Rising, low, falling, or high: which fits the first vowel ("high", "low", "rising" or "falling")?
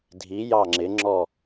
rising